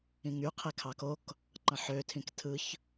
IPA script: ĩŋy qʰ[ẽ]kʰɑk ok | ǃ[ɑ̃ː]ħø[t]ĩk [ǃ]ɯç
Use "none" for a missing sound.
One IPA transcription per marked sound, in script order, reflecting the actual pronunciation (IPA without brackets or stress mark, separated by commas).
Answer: e, ɑ̃, tʰ, tʰ